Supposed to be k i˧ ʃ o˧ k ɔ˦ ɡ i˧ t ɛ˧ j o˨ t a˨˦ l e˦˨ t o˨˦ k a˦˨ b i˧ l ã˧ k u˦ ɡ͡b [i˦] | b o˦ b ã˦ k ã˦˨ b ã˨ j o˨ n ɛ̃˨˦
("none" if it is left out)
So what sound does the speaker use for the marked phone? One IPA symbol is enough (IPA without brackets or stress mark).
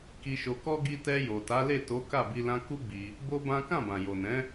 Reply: i˧